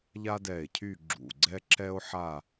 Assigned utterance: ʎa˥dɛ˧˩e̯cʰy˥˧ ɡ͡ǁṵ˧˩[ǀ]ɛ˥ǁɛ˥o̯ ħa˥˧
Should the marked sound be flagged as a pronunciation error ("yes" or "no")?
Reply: yes